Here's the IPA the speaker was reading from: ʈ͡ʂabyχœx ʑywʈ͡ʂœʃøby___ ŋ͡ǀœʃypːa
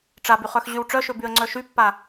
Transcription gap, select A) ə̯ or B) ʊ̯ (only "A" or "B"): A